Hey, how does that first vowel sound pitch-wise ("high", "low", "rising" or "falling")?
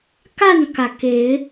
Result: falling